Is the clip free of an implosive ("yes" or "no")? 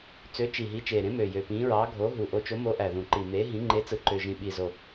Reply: no